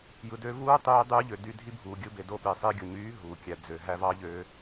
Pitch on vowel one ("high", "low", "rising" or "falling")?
low